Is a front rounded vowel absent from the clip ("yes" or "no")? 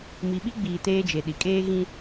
yes